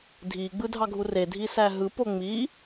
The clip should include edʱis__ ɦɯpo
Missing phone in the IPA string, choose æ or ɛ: æ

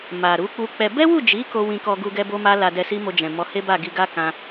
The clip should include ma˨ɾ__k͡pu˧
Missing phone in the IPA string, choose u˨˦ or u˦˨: u˨˦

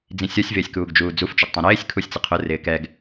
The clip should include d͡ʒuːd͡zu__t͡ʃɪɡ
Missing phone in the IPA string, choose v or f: f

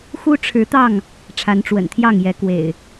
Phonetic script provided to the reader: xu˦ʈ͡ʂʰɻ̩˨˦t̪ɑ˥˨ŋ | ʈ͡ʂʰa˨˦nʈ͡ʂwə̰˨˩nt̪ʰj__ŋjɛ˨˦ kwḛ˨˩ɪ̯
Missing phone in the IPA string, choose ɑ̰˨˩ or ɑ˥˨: ɑ˥˨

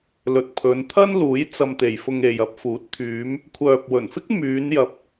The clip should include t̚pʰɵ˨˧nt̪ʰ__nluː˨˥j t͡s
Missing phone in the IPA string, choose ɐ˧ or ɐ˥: ɐ˥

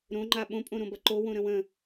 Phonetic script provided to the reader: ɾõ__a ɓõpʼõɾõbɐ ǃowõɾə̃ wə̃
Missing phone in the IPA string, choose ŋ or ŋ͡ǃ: ŋ͡ǃ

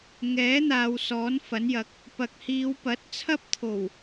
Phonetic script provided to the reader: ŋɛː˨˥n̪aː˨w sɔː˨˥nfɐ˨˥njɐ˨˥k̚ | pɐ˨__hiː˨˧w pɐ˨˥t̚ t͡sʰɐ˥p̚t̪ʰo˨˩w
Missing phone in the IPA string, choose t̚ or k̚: k̚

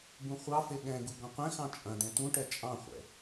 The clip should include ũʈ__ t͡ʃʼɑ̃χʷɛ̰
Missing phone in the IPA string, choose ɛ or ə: ɛ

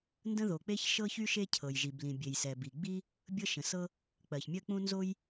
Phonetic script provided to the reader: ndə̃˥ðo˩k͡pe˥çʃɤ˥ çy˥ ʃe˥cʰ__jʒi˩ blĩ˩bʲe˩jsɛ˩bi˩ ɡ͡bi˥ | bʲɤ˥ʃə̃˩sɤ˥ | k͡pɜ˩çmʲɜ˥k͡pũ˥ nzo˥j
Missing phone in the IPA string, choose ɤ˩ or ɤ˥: ɤ˩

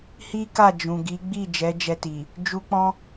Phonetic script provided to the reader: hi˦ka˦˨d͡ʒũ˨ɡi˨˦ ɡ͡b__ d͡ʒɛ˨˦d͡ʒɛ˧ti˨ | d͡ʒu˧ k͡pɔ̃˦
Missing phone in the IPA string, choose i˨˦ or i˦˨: i˦˨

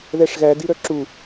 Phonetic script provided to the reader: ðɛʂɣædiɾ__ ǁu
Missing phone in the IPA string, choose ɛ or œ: œ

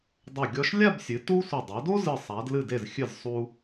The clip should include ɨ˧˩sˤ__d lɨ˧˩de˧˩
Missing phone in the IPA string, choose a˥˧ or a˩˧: a˩˧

